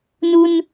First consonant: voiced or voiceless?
voiced